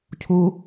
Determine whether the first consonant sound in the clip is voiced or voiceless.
voiceless